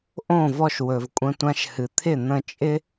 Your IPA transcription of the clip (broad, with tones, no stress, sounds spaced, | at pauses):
ʔ õ˦˨ v ɔ˧ ʃ w ɵ˨ v kʷʼ ə̃˧ tʷ ã˧ ʃ h ɨ˨ t̪ʰ ɪ˦˨ n̪ ə̃˧ t͡ʃʼ ɪ˦